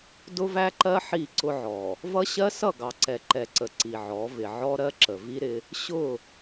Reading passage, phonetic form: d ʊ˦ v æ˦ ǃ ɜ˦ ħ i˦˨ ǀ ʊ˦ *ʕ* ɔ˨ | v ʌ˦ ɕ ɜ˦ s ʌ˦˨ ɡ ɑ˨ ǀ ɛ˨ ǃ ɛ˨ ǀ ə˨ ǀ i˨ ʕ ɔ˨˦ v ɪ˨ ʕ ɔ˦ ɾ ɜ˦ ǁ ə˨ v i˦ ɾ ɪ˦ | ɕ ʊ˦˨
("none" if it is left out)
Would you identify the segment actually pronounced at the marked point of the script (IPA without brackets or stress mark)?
ʕ